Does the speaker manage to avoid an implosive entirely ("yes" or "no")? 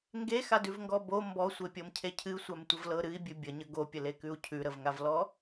yes